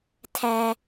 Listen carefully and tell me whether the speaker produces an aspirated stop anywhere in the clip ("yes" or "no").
yes